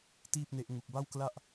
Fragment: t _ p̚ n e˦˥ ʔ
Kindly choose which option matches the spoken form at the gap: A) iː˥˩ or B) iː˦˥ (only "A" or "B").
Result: A